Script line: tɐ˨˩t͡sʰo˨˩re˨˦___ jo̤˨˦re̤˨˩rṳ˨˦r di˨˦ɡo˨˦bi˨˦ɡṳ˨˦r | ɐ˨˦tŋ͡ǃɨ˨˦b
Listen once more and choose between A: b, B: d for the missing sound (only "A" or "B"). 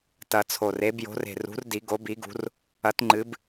A